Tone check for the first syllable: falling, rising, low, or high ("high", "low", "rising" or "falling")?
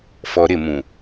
low